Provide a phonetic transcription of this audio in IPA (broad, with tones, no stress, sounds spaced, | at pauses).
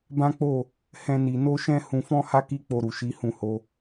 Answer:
b ã˦ k͡p o˦˨ | h ɛ̃˦ n i˧ n o˦ ʃ ɛ̃˦ h ũ˧ f ɔ̃˦ h a˦ k i˦ k͡p o˧ ɾ u˨ ʃ i˨˦ h ũ˦˨ h o˨˦